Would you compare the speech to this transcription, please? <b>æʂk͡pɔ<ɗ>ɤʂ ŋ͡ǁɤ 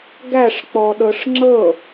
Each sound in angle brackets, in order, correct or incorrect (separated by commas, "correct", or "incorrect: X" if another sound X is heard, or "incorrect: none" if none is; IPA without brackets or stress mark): incorrect: ɡ, correct